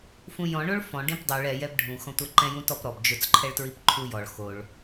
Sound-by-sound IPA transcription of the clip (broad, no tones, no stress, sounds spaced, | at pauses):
f ũ j ɔ̃ ɳ o ɭ f ɔ̃ ɖ ĩ p dˤ u ɭ ɛ j ɛ b ɖʱ ũ x ɔ̃ tʷ a ǃ ɛ̃ j ũ t ɔ p ɾ ɔ b d͡ʒ ʊ t͡s ǃʰ ɛ ɭ t ɹ i p ǃʰ u j ɔ ɭ x o ɭ